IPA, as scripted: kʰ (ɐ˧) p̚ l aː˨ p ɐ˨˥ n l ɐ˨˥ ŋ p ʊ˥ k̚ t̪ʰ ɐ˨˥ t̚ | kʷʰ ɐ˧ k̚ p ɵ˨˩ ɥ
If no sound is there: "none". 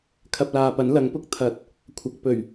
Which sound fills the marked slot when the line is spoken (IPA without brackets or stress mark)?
ɐ˧